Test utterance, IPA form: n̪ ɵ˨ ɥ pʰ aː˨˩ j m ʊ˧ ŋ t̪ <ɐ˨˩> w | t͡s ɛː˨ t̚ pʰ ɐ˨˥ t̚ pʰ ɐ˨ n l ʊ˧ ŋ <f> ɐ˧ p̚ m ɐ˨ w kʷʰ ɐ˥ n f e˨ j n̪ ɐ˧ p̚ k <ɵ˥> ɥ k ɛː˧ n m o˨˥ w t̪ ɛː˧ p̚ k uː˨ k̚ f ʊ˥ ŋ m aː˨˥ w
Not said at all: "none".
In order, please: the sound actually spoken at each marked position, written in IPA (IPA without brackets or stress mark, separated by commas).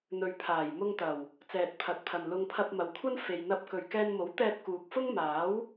ɐ˨˩, pʰ, ɵ˨